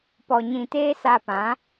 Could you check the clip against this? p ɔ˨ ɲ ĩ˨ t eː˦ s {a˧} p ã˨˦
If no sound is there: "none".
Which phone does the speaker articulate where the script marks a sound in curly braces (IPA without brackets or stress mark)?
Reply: a˧